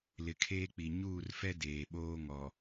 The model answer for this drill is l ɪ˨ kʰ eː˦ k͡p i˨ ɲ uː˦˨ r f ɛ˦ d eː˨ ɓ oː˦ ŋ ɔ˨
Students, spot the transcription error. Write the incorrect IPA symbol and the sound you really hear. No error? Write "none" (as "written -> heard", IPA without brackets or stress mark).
none